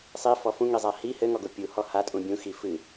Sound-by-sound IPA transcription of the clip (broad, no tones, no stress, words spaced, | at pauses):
sˤifɔ fũŋizˤa hi hɘŋɔɡo pʲuhɔ hatʼũ bʲũxi fɨ